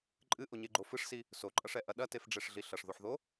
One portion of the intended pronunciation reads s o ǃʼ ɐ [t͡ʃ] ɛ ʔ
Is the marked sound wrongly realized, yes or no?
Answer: yes